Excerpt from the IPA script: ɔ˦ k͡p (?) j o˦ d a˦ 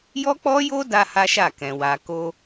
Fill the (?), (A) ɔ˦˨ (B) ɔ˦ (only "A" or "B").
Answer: B